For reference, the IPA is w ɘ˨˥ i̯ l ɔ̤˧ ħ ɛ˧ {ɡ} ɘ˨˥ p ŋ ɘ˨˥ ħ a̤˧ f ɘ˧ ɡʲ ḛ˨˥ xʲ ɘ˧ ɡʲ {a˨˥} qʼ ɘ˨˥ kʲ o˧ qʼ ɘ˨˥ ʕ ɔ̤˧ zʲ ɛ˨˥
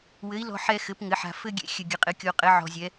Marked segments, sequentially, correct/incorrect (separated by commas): incorrect, incorrect